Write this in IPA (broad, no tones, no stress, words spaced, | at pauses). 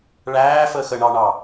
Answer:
ɭæːfəːx əɳɑɳɑ